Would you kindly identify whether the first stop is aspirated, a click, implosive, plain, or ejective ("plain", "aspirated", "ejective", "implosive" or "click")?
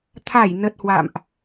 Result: aspirated